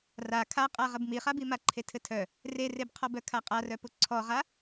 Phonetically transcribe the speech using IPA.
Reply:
ra kʰaqʼa ʁəbmiχabi maǃʰetʰɘtʰœ | rerebqʰɔbœ kʰaqʼarœpʊ ǀʰɔʁa

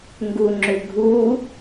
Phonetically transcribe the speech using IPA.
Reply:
ŋɡuŋ͡ǁʏɡʱu

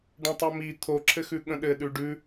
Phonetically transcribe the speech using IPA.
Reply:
ɖə̃tˤɘmi t̪ʰoǁʰɘxʉ ɠə̃ɗɘ ɗʉɖʉ

